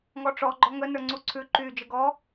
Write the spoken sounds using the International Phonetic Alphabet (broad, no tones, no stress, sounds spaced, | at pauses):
ŋ ɔ ʈ͡ʂ ɔ ɡ͡ǃ ɔ ŋ ə n ə˞ ŋ͡ǀ u ǀʰ ʉ ǃ y d͡ʒ ə ɡ ɔ